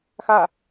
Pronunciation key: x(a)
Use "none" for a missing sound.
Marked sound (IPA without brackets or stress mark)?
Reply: a